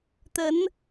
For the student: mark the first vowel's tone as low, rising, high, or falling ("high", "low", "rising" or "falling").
rising